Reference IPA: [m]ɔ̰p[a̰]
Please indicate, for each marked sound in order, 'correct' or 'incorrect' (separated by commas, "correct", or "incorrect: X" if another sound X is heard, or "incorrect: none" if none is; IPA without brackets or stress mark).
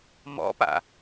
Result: correct, correct